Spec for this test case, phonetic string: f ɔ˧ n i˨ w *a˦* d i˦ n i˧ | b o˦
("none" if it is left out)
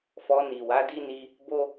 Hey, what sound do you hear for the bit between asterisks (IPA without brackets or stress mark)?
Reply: a˨˦